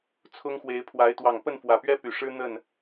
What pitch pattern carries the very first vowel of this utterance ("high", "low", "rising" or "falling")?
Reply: high